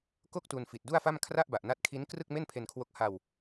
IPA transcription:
k o˥˩ k̚ t u˧ n f i˨˩ t̚ d u˥˩ a̯ f a˥˩ m kʰ r a˥˩ ʔ b a˨˩ ʔ n a˦˥ t̚ kʰ i˦˥ n k r ɯ˥˩ k̚ m e˥˩ n pʰ e˧ n kʰ w o˦˥ k̚ h a˧ w

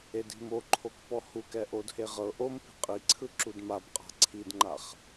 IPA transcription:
e d i̤ m o ǃʰ o k p ɔ h u k ɛ ʔ o d h e ʁ ɤ ʔ o m p i̤ qʼ i ǀʰ ɯ ǁ u d m a b qʼ a̤ ǀʰ i d ŋ͡ǃ a χ

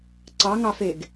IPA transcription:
ǀ ɑ ŋ ɑ f e ɡ

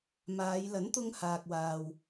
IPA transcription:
m aː˨˧ j l ɐ˨˥ n t̪ ʊ˧ ŋ h aː˨ k̚ w aː˨ w

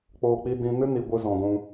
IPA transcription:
k͡p oː˧ k͡p i˧ d ĩ˧ n ɨ˦ n i˧ ɡʷ ɨ˧ z ɔ̃˨ ɡʷ ũ˧

